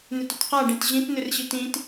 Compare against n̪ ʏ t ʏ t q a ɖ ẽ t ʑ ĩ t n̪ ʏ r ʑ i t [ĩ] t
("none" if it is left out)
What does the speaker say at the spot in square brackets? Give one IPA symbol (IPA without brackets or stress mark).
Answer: ĩ